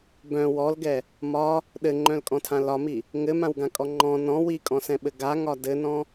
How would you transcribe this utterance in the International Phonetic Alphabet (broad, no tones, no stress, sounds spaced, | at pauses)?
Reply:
b œ̃ w ɔ l ɡ ɛ | m ɒ | ɗ ɘ ŋ͡ǃ œ̃ l kʼ ɔ̃ tʰ ã l ɒ m i | ŋ ɘ m ã w ɡ ã kʼ ɔ ŋ͡ǃ ɔ̃ n ɔ̃ w i kʼ ɔ̃ s ɛ̃ ɓ ɘ ɡ a ŋ ɒ d ɘ n ɔ̃